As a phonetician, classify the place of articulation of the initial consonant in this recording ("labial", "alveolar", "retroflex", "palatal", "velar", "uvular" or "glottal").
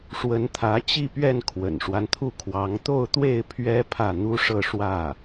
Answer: retroflex